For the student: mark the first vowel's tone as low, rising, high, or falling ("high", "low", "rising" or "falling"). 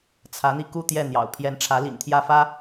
rising